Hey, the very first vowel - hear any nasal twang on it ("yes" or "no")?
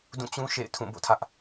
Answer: yes